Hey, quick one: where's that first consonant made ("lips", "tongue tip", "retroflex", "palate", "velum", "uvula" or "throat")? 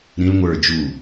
tongue tip